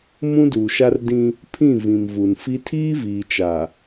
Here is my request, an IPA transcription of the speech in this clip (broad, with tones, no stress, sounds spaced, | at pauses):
m ũ˦ d uː˨ ʃ a˦ r d ĩ˦ | pʰ ĩ˦˨ v ĩ˨ m v u˨ n f i˦ tʰ iː˦ v iː˨ t͡ʃ a˨